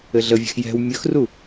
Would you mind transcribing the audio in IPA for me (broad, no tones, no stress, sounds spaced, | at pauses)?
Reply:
ɘ ɮ ə vʲ ɛ̤ x j ɛ̤ w mʲ ɵ x r u